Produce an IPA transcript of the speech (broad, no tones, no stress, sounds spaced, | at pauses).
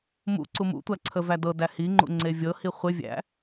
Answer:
m ṵ ǀ u m ṵ tʷ æ ǀʰ ə v æ d ɤ d æ h i ŋ͡ǃ ṵ ŋ͡ǀ e vʲ ɤ h i χʷ ɪ vʲ æ̰